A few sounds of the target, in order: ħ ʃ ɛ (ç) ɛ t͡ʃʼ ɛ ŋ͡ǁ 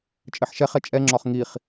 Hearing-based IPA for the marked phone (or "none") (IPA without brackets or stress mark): χ